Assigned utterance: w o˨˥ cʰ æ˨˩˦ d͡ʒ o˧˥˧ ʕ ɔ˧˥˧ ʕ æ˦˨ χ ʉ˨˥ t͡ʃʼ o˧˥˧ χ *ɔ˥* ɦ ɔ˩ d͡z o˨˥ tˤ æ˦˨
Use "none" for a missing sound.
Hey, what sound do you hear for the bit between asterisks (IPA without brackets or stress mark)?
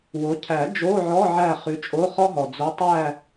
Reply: ɔ˥